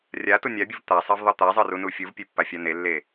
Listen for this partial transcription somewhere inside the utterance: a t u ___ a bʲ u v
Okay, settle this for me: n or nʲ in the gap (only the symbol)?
nʲ